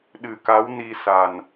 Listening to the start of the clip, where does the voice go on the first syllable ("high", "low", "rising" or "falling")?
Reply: low